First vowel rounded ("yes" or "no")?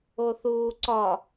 yes